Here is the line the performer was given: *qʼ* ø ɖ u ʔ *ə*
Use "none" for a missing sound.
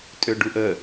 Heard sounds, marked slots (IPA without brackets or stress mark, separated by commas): tʼ, ə